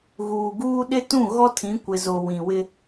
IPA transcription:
ɣuː˨ɡuː˦ ɗɪ˦tũ˦˨ ɣɔ˦tʰĩ˨˦ kʷɪ˨zo˨ wĩ˨wɪ˦

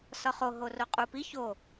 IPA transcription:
sɒχo ɦoroqʼupi ço

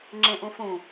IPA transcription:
ŋ͡ǁẽʔũfũ

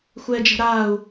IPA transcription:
xʷɛːd͡ʒɛ̤ɾaːu̯

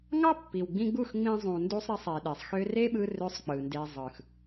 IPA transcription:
ŋɑ˦pːi˨wɡ͡bĩ˧ɡ͡bu˦˨x ŋ͡mĩ˧ zˤũ˨ndu˧sˤɾe˧sˤ e˨ɗe˨sˤ xø˧re˦ɓɯ˧ rø˦sˤk͡pɯ˨nde˧ zˤɯ˨x

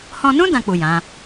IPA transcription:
hɔ̃˧nũ˦ dã˧k͡pu˨ jã˨˦

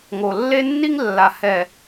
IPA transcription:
ŋo˨ lːe˦nːi˦ŋ lːa˨hɛ˨

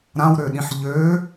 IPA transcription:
ɾãwɾøɗĩħ ʎø

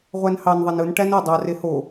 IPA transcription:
ʁʷænhɑn ðˤenɯn ʈænɯ dˤɑ reho

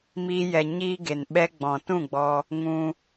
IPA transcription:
miː˧jɛ˨ ɲiː˧ ɡe˨nɓɛ˧ ɡ͡bɔ̃˨tũ˦˨ɡ͡bɔ˧ | ŋũ˧

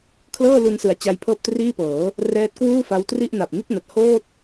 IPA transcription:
kʰlɤː˥˩lu˧nsɯ˩˦a̯ t͡ɕa˦˥jpʰɤː˥˩p̚triː˥˩pɤː˩˦ | rɛː˦˥t̚kwuː˥˩fa˦˥wtri˥˩ʔ na˨˩p̚ni˥˩t̚na˨˩t̚ hoː˥˩t̚

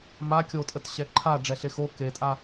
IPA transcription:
ma kʲotʼətɕɛ ǃʰa ɖ͡ʐɛɬexo ketʼa

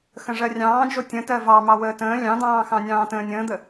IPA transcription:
xə̃ʐɜrʲɑ̃ːd͡ʒo tʲə̃tɜ vɑmɑ wəːtə̃ː lʲɑ̃d̪ɑ̃ːxɑ̃ nʲɑ̃ːtə̃ːnʲə̃ːd̪ə

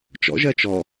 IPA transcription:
t͡ʃɔ̰ʒɜ t͡ʃɔ

